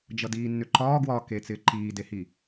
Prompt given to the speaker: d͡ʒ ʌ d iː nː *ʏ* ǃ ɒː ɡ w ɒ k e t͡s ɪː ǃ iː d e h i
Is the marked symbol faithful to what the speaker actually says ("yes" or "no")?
yes